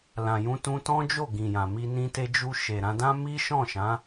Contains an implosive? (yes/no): no